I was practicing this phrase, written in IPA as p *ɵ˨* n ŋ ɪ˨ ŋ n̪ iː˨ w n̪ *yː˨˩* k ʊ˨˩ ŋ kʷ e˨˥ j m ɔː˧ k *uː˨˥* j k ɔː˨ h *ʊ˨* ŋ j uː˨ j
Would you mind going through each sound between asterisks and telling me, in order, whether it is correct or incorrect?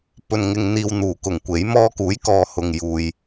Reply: correct, incorrect: uː˨˩, correct, correct

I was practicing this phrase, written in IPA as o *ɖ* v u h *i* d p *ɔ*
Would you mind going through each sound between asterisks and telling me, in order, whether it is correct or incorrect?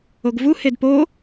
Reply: incorrect: ɡ, incorrect: e, incorrect: o

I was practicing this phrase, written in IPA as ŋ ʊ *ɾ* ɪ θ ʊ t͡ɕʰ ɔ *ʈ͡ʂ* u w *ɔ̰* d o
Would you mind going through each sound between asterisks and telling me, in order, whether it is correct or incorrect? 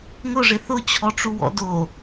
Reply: incorrect: ʐ, correct, correct

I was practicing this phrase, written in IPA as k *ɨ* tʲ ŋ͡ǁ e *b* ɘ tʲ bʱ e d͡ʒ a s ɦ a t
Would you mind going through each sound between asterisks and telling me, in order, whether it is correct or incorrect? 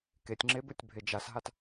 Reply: incorrect: e, correct

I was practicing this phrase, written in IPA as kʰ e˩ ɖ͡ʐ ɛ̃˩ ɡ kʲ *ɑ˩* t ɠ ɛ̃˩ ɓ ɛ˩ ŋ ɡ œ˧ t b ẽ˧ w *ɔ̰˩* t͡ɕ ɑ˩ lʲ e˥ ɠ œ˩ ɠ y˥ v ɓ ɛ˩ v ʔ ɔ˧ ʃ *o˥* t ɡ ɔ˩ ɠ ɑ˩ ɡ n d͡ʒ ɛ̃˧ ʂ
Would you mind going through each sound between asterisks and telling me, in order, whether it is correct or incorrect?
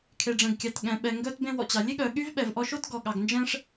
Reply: correct, correct, correct

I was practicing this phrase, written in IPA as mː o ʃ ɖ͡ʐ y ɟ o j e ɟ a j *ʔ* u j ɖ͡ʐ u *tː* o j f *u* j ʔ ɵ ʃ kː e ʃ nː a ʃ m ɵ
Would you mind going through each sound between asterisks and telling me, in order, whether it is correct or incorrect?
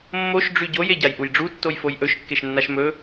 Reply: correct, correct, incorrect: o

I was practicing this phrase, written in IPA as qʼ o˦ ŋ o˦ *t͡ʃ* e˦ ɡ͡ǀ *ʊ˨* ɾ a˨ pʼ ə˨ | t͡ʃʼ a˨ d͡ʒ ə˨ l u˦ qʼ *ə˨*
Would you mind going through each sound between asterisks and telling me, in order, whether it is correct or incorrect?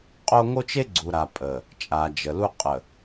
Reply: correct, incorrect: u˨, correct

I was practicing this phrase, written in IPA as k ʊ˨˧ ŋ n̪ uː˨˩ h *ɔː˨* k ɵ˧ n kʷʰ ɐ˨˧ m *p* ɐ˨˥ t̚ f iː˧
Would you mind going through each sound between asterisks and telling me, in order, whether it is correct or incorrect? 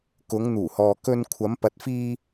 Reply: correct, correct

